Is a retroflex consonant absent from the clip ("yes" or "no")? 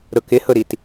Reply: yes